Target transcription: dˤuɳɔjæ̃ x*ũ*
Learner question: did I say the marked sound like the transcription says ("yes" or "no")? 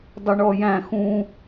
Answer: yes